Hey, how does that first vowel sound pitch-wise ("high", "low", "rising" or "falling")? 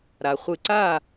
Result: low